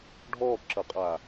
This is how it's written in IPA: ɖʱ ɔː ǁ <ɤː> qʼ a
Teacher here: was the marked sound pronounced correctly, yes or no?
no